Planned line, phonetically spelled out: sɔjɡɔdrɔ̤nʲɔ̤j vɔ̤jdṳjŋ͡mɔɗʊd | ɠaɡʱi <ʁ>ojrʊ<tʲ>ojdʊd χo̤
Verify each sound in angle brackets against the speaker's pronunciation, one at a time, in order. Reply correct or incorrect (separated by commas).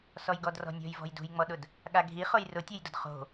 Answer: incorrect, correct